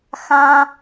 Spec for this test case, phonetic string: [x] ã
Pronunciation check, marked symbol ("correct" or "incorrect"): correct